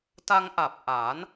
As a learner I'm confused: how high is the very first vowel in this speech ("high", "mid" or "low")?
low